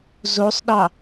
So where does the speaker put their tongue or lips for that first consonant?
tongue tip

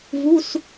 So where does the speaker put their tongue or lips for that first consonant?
lips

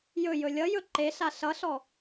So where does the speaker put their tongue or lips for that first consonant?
palate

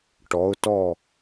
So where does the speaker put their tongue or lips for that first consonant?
retroflex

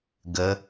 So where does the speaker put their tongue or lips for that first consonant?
velum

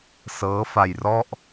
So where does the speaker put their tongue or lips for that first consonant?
tongue tip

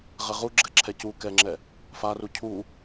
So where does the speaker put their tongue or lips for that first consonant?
uvula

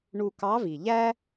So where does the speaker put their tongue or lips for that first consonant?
retroflex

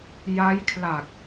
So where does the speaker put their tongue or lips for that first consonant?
palate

